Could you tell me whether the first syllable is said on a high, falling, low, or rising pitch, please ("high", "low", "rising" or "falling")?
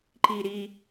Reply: low